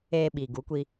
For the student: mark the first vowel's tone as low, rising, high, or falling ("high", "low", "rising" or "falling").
low